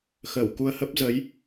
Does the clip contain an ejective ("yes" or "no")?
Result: no